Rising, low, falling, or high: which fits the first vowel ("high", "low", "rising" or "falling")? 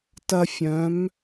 high